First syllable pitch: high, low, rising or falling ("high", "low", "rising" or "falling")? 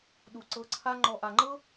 low